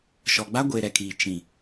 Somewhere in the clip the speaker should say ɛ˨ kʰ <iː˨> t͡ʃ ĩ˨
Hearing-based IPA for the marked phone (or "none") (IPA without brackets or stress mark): iː˨